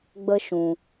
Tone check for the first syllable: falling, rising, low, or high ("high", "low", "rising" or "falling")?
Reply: high